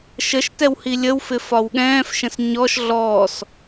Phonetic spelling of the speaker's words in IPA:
ʃ ə ʃ t ɛ w h i lʲ ə w f ɪ f ɒ w ɠ ɛ̃ː f ʃ ə̃ s ɲ ɔ ʃ ɮ ɔː s

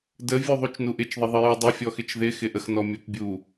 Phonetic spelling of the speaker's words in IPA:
d ə vʲ u ðˤ u t͡ʃ n u ʔ ɪ t͡ʃ ðˤ ɪ ðˤ ə j u dˤ ɪ fʲ ɔ x ɪ t͡ʃ ð ɪ x ɪ ʔ ə x n ɔ mʲ ɔ p bʲ u

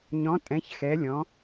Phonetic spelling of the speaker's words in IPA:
ɲ ɔ̃˨˦ tʼ ɛ̃˨˦ ç x ɛ˨˦ lʲ ɔ̃˨˦

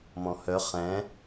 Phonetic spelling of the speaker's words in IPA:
m ɔ̃ h œ χ ɛ̃

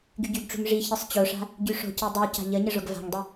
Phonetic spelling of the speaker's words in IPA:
ɡ y ɟ y ɡ ʈ͡ʂ ṳ ŋ ʐ i ç i sˤ t͡ɕ o ʂ a̤ | ɟ y ʂ o̤ c i dˤ u c a̤ ʎ ə ɲ ə ʐ o ɡ v a̤ ŋ dˤ y

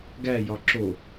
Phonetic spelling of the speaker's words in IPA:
ɡ æ j ɒ ǁ o

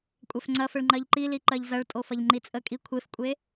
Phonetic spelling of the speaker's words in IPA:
kʷʼ ɛ f ŋ͡ǀ ɐ f ə ɭ ŋ͡ǃ ɜ ʎ ǃ i l i ǃ ɜ ʎ z ɐ ɭ tʼ o f ɐ ʎ ŋ͡ǃ i t͡sʼ ə kʼ i kʷʰ e f kʷʼ e

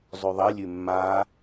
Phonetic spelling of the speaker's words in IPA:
zˤ ʉ ðˤ i lʲ ʉ mː a

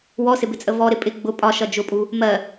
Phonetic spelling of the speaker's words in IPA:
w ɔ s ɪ b ɪ t͡sʼ ə v ɔ ɾ ɪ pʼ ɪ ɡ͡b ʊ pʼ ɒ ʃ ʌ d͡ʒ ʊ pʼ u | m ɜ

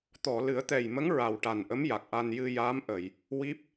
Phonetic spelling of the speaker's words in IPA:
t̪ ɔ˨˩˨ l ɨ˨˩˦ ə̯ t̪ ɛ˨˩ j m ə˧˥ ŋ ɹ a˨˩ w ʈ a˨˩ n ʔ ə˧˥ m j a˨˩ k̚ ʔ a˧ n j ɨ˧ j aː˧˥ m ʔ ə˨˩˨ j | w i˦˥ p̚

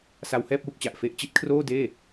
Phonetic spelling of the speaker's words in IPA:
s a˧ w h ɛː˥˩ p̚ w u˥˩ k̚ t͡ɕ a˨˩ ʔ f e˦˥ ʔ t͡ɕ i˦˥ t̚ kʰ r oː˥˩ d eː˥˩

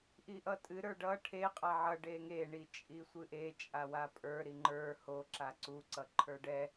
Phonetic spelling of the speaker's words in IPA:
ʔ i ʔ ʌ tʼ ɨ ɾ ə˞ ɖ ʌ ʈʰ e qʼ a ʕ ʌ ɖ e ŋ e ɳ i t͡ʃʼ i sʷ ɨ ʔ e t͡ʃʼ a w a pʼ ə˞ ɾ i ŋ͡ǃ ə˞ h o ǁ a ǀ u ǀ ʌ ǃʰ ə˞ ɖ ɛ

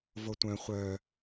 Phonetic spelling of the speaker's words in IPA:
v o tʷ œ̃ χʷ œ

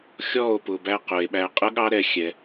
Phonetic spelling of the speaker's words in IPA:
xʲ ɔ˦˨ o̯ p ʊ˧ b æ˦ q ʊ˨ e̯ ɓ æ˧ qʼ ə˦ ɠ ɑ˦ ɾ ɛ˧ xʲ ɛ˧

